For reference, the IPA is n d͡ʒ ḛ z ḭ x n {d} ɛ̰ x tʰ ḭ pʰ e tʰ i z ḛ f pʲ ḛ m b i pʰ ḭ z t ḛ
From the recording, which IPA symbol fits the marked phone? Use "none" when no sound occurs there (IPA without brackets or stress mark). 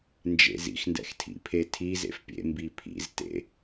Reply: d